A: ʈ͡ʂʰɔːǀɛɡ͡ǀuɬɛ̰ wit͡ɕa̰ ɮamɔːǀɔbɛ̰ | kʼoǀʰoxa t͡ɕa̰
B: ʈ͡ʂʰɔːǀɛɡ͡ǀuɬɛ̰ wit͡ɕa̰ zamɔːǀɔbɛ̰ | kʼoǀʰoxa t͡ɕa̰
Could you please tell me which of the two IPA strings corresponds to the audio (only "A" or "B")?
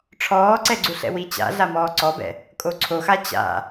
A